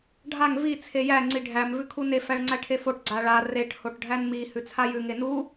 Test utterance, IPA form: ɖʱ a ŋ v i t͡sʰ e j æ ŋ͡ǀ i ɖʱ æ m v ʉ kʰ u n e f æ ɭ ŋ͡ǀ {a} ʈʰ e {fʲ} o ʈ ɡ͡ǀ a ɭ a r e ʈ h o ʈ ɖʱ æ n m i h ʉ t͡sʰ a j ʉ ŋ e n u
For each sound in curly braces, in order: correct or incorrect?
incorrect: æ, incorrect: f

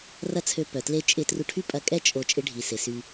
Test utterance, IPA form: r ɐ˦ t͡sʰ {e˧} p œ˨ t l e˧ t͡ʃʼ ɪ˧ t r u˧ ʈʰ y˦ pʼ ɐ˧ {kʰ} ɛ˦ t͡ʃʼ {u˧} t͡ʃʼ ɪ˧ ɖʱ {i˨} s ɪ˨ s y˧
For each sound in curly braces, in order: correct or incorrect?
incorrect: ø˧, incorrect: kʼ, incorrect: o˧, correct

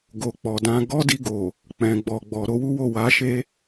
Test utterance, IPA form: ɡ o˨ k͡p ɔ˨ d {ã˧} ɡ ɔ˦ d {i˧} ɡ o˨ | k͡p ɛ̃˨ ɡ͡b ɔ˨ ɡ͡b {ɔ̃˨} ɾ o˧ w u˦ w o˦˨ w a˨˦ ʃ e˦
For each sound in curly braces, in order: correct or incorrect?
correct, correct, incorrect: ɔ˨

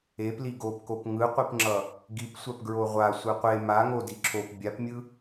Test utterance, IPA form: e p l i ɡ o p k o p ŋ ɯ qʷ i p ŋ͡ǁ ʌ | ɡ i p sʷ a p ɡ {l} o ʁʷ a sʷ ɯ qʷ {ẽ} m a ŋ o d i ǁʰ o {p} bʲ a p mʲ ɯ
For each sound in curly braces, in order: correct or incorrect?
incorrect: ɹ, incorrect: e, correct

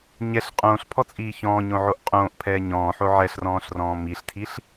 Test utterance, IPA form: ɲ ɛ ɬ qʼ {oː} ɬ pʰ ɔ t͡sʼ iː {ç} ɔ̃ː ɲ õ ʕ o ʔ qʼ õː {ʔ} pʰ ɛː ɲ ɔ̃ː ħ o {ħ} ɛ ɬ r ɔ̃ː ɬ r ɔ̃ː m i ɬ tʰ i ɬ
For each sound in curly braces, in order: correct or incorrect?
incorrect: õː, correct, correct, incorrect: ʕ

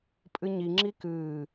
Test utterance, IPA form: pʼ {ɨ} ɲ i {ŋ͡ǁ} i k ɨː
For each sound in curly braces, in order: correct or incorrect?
correct, correct

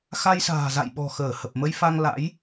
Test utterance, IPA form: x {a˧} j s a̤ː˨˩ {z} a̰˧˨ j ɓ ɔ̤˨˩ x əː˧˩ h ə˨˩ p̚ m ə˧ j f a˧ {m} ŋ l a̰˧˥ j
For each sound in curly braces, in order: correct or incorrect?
correct, correct, incorrect: none

